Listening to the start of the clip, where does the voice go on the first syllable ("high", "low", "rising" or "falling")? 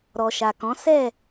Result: low